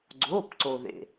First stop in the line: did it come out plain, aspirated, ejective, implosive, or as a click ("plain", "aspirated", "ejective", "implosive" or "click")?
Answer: click